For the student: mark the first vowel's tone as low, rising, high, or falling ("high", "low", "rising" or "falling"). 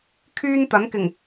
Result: high